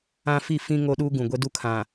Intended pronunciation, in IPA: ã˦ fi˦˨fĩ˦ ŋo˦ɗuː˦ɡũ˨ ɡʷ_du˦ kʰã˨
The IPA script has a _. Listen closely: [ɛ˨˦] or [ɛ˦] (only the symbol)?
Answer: ɛ˦